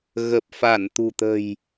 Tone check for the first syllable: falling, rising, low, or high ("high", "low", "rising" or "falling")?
low